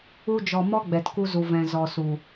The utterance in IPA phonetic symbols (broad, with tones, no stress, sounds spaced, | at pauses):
u˧ d͡ʒ ɔ˨ m ɔ˦ ɡ͡b ɛ˨ t k u˧ z u˨ v ɛ̃˨ z ɔ˨ s u˨